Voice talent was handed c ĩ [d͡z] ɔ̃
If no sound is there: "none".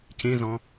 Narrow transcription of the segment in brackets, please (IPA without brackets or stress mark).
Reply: z